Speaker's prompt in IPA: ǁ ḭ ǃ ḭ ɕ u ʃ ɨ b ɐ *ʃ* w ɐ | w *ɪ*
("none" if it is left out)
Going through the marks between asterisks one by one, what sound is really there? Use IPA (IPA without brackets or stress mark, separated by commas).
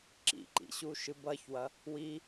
ç, i